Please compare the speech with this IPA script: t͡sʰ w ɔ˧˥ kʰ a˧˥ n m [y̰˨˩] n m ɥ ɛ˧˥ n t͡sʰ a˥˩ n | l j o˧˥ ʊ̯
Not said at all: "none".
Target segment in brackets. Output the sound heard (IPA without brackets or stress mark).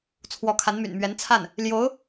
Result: y̰˨˩